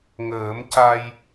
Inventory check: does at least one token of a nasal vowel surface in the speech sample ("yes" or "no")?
no